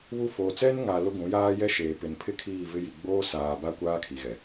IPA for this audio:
βu˦ foː˨t͡sɛ˦nŋa˨ lʊ˦ɡʷũ˨˦jaː˦ jɛ˦ʃeː˨pɪ˨n pʰɪ˦kʰiː˦˨ vɪ˦ji˨ ɡ͡boː˦ saː˨ ba˦ kʷaː˦kʰi˨ɣɛ˨

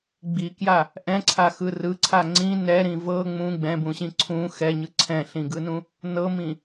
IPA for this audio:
ɡ͡bikja | ʔɛ̃ǀʰaxɯ rɯǀʰa ŋ͡ǀĩ nɛɾĩ vɤ ŋ͡mũ ɡ͡bɛ̃bũɕĩ ǀʰũ xɛɲɯ ǀʰɛ̃ɬĩɡɯnũ | nɤmĩ

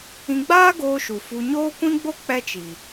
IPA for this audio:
ĩ˧ɡ͡baː˦ ɡoː˧ ʃu˨ fu˧ ɲoː˦kʷĩ˦ɡ͡bo˦ k͡pɛ˦t͡ʃi˨

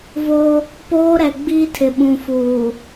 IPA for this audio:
vo˦ | poː˦ɾɛ˨ ɡ͡biː˦tʰɪ˨ɓũ˨fuː˨

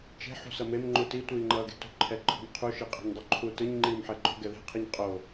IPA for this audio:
t͡ʃe̤ ħṳsʌmem ŋ͡ǃuti tʷiːŋ͡ǃʌːɡe̤tṳ ǃʰɛǃʰo̤mqʰu ʃiqʼe̤ɲdˤuǃʰu tɯɲ ŋ͡ǃiːmħɛɡ͡ǃo̤ ɡɛðe̤ qʰiɲqʼo

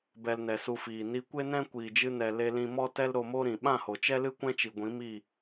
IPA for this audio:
bɛ˧lnɛ˨su˧fiː˨ ni˧ kʷe˦nɛ̃˦ kʷiː˨d͡ʒɨ˧ nɛ˨ le˧lĩ˧ mɔ˦tɛ˦l ɾo˧mo˦ɾĩ˨ ɓã˦˨ho˨t͡ʃɛ˦lɨ˦ kʷɛ̃˦t͡ʃi˨ ɡʷĩ˨˦ mi˦˨

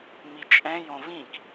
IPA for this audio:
mit͡ʃʼɛ̃ jõvĩk

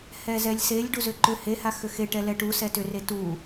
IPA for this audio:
hɛzɛlʲselʲ ɖuzʏǃʏ heha xʏxeʈɛ lɛʈusɛ tʏre tu

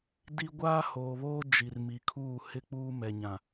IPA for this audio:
di˦ ɡʷaː˦hoː˨βoː˦ d͡ʒi˨rmi˨kʰuː˦˨ hɪ˦k͡puː˦ mɛ˨ɲã˨

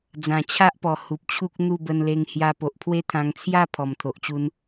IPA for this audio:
d͡zã˨˩t͡ɕʰa˦ʔpɔ˨˩ hu˨p̚t͡ɕʰu˦k̚ n̪u˥˧bə˧nle˧ŋ hja˧po˨ʔpʰwe˦t̪ʰã˧ŋ t͡sʰja˥˧ pʰɔ˨˩mt̪ʰo˨ʔt͡ɕu˧n

